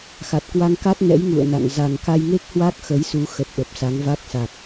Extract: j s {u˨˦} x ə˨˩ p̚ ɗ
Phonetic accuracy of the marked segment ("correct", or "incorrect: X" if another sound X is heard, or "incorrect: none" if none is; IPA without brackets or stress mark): correct